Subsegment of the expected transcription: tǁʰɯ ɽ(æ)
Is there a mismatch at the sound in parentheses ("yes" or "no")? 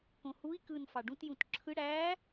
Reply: no